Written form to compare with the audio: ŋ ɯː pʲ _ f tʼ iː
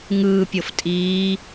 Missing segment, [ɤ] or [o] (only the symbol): ɤ